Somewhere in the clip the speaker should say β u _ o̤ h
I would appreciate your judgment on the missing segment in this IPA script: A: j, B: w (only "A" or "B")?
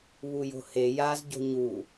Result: A